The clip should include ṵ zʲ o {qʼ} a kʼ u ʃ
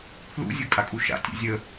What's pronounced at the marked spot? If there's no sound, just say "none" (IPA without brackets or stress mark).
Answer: kʼ